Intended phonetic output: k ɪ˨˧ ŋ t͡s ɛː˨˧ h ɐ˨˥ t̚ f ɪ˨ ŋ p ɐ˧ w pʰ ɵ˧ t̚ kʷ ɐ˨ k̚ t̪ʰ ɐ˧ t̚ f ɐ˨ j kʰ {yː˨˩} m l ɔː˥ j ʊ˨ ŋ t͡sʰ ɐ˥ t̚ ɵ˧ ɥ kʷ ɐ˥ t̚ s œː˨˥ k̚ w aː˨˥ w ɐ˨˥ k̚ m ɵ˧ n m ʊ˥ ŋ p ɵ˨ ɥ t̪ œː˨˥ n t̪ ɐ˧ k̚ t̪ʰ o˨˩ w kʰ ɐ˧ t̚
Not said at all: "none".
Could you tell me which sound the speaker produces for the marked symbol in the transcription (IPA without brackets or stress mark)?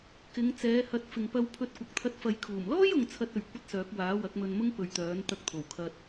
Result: uː˨˩